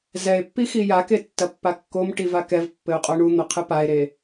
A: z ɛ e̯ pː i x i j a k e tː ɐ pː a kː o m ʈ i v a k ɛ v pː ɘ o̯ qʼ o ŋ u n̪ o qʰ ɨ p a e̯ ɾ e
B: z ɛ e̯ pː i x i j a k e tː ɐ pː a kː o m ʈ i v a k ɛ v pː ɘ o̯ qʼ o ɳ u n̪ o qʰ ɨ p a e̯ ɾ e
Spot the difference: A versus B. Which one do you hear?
B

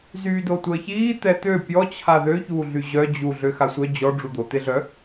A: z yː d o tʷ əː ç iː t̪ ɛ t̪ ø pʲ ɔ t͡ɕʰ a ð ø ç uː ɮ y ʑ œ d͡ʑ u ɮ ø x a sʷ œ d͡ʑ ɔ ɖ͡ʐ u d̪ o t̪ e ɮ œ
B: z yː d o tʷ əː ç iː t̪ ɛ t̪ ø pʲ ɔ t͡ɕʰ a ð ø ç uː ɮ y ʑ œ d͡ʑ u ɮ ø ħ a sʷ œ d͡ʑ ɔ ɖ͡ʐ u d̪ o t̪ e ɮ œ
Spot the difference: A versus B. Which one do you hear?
A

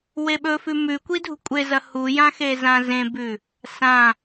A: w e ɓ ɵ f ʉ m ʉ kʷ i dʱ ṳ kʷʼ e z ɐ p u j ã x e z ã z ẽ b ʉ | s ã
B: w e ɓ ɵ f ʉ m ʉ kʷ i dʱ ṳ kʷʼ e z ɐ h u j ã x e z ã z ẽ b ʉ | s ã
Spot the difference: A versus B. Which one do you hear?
B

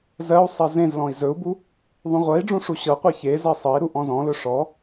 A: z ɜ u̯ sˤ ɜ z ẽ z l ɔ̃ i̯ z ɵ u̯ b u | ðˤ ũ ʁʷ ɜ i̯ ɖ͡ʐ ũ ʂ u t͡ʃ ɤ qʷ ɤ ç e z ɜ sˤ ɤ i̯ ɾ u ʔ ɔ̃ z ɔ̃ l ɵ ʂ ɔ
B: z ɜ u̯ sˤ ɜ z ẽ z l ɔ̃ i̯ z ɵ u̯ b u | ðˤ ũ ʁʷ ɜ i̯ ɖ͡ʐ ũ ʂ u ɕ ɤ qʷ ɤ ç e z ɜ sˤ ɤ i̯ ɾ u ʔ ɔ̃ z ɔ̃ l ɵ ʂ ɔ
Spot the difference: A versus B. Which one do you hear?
B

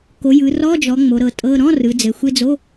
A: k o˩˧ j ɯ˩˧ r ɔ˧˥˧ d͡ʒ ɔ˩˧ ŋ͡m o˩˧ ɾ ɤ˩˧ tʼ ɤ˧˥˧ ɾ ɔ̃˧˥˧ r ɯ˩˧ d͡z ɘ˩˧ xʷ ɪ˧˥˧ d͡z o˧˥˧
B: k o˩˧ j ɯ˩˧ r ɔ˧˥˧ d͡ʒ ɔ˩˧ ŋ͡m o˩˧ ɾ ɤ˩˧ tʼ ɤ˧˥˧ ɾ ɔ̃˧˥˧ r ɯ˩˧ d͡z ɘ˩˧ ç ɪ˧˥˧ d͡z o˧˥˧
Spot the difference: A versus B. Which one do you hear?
A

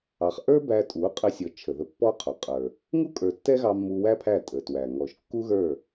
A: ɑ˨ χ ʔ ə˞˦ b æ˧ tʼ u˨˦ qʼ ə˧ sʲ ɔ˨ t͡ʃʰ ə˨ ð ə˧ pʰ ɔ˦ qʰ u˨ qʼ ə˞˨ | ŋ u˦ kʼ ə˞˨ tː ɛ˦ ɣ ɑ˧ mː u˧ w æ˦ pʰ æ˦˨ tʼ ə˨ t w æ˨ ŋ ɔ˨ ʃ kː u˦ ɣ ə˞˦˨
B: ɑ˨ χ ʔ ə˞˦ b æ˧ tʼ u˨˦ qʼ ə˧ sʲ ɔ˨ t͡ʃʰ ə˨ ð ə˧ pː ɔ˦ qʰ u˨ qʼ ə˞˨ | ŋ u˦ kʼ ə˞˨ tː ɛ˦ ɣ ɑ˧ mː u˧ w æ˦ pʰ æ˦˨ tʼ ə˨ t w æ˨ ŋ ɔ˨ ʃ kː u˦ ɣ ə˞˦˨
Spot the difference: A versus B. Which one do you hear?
B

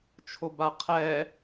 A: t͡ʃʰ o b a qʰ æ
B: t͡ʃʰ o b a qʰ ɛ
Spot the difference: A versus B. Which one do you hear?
B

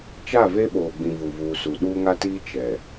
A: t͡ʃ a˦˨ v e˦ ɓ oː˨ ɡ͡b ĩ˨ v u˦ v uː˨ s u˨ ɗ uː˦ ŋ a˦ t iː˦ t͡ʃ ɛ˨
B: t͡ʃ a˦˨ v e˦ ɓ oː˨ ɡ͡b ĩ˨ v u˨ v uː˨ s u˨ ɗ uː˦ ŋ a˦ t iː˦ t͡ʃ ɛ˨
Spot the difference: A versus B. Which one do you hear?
B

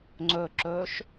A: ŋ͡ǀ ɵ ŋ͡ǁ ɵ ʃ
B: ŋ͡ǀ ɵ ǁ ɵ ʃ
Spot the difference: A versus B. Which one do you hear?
B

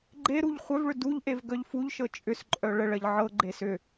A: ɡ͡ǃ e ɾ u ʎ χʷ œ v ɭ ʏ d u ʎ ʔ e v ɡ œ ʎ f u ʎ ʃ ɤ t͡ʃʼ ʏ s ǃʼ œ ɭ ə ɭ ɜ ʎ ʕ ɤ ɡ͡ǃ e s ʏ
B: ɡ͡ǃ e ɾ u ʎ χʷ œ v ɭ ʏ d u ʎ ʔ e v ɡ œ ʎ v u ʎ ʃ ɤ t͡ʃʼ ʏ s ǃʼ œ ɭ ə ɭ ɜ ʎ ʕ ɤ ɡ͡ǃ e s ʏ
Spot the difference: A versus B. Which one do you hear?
A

